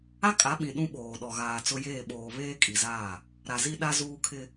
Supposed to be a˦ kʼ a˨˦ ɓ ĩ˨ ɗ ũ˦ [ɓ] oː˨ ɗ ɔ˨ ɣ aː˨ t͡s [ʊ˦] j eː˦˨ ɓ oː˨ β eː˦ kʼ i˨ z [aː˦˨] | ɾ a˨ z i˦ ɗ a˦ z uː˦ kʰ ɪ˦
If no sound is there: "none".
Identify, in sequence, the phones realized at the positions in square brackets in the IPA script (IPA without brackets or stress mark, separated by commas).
ɓ, ʊ˦, aː˦˨